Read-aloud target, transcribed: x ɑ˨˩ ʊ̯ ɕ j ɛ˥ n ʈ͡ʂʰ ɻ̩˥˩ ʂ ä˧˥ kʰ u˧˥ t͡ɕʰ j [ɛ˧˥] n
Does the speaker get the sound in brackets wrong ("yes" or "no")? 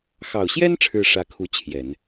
yes